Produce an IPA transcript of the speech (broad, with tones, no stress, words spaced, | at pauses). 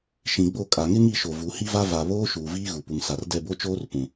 ʃĩ˨ɡ͡bo˦˨ kʼa˨ŋɪ˦ŋi˦˨ʃo˨ vu˨˦hi˦va˦ va˨ βoː˦ʃuː˨ viː˦ɣu˨pu˨ŋsa˨r dɛ˦˨bo˦t͡ʃoː˦r pũ˨